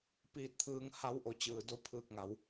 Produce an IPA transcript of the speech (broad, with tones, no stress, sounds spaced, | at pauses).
p iː˧ t̚ t̪ʰ ɯː˧ ŋ h a˧˥ w ʔ o˧˩ t͡ɕ ɯː˩ d o˧˥ pʰ ɯː˧˩ k̚ ŋ a˩˧ w